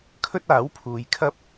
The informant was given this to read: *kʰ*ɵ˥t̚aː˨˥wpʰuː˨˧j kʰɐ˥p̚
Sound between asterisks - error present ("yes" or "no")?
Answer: no